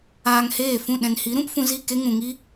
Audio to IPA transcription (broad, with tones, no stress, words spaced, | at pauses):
aː˧ŋheː˦˨fũ˦˨ ɗɛ̃˨nhi˨˦ɾũ˦p fũ˧zi˦˨ ke˦ŋũ˨ŋi˦